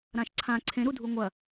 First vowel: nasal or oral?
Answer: nasal